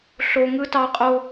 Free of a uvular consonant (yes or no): no